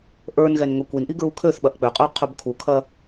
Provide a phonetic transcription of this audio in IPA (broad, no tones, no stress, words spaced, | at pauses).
ʔə˞nɣɛn ŋɵkʷinʔi ɡɹukʰøθɓɐʔ k͡pøqʼə˞ qʰɵbkʰukʰɐ